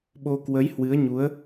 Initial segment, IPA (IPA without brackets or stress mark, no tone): ɓ